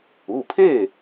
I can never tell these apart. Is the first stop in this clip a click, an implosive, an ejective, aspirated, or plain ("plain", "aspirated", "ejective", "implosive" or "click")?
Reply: aspirated